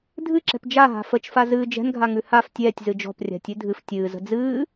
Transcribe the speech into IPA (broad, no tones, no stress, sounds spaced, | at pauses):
dʱ ɨ ǁ ɛ̤ p d͡ʒ a ɦ a̤ f ə t͡ʃ f a z ɨː d͡ʒ ɛ̤ n ɡʱ a ŋ ʉ h a f tʲ ɛː tʲ z ɨ d͡ʒ ɔ̤ p rʲ a̤ tʲ ʉ dʱ ɨ f tʲ ɨː z ə̤ d͡z ɨː